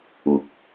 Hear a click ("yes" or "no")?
no